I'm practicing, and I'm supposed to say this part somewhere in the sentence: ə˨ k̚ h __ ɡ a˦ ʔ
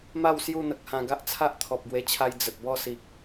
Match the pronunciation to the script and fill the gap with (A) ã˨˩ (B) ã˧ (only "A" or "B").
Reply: B